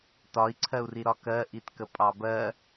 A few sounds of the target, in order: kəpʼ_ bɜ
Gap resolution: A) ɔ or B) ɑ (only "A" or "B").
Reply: B